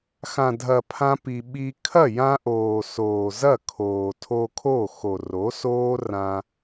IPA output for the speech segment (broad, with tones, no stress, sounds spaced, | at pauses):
x ã˨ dʱ ɐ˨ pʰ ã˦ p i˧ ɓ i˦ kʰ ɐ˦˨ j ã˧ ʔ oː˨ s oː˨ z ɐ˦˨ kʰ oː˨ tʰ o˧ kʰ o˦˨ x o˨ r o˨˦ s oː˦ r ã˧